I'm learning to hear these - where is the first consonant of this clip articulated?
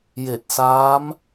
palate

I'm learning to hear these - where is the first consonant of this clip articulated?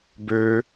lips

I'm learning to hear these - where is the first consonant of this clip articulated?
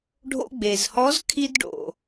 retroflex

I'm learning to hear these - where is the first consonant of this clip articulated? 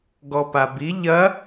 velum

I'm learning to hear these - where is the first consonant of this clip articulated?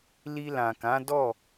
tongue tip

